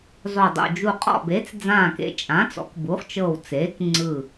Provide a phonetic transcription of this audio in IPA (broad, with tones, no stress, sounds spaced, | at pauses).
zˤ o˧˩ dˤ o̰˧˩ d͡ʒ u˧˩ qʼ ɔ̰˧˩ b e˩˥ t͡s d͡z ãː˧˩ k ḛ˧˩ t͡ʃʼ ãː˩˥ t͡s ɔ̰˩˥ k b u˩˥ χ t͡ʃ ɤ˧˩ w t͡s eː˩˥ k ŋ͡ǀ ɯ˧˩